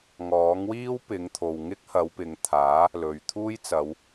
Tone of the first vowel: rising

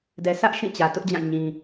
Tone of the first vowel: low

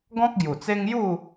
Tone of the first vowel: high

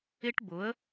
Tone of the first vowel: high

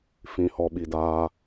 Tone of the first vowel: low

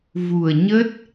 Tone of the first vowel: low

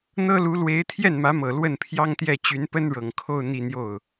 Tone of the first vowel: high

